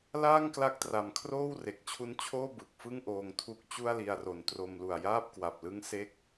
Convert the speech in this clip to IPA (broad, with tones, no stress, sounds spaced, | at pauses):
l aː˥˩ ŋ k l a˦˥ k̚ t r a˨˩ m kʰ r oː˥˩ w r e˨˩ k̚ t͡ɕʰ u˦˥ n t͡ɕʰ oː˥˩ b ɯ˨˩ k̚ f ɯ˥˩ ŋ ʔ oː˧ ŋ tʰ u˦˥ k̚ t͡ɕ u˥˩ a̯ l i˧ a̯ r o˩˦ n t r o˧ m l u˨˩ a̯ j aː˥˩ p̚ k w a˨˩ p̚ l ɯ˦˥ ŋ s e˦˥ k̚